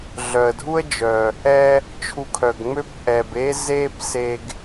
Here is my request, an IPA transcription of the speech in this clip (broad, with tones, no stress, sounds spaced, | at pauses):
ɮ œ˩ ə̯ dʱ u˥ ə̯ d͡ʒ œ˩ | ɛ˧ | t͡ʃʰ u˧ kʰ œ˩ ɡ ŋ͡m ø˥ p ʔ ɛ˩ b e˥ z e˥ p s e˧ ɡ